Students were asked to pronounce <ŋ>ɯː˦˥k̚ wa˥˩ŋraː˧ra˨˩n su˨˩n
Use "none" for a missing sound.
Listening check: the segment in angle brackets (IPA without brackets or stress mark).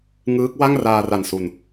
ŋ